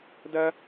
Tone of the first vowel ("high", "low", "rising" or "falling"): high